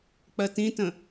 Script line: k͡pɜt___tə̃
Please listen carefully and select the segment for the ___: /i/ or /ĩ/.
ĩ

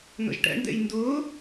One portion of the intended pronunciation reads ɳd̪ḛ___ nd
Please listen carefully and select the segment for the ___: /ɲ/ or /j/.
j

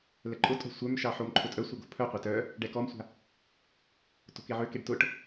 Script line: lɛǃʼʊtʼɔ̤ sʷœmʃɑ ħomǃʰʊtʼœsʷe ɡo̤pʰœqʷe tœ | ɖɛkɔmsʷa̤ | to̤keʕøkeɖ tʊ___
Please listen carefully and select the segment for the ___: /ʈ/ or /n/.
ʈ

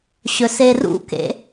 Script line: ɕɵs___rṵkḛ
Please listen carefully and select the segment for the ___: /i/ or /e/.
e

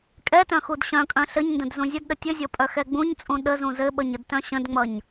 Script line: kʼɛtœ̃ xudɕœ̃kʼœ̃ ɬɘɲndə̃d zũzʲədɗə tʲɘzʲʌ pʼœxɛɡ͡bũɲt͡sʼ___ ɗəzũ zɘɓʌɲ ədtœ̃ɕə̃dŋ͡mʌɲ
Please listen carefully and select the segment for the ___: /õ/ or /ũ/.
ũ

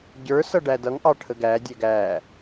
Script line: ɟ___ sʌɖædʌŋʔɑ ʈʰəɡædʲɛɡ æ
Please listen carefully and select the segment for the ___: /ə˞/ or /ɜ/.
ə˞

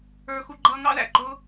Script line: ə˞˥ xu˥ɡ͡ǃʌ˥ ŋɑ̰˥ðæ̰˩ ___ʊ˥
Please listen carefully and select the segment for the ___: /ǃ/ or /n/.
ǃ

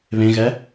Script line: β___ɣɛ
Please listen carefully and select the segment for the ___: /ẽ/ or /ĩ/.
ẽ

